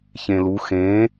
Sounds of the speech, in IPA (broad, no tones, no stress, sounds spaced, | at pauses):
ç ẽ l u x ẽ